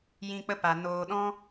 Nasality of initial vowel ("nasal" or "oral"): nasal